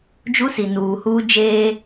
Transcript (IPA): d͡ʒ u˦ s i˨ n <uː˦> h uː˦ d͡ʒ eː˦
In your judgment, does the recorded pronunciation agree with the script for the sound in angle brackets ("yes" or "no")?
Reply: no